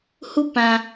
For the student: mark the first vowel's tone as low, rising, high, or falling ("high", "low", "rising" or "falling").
high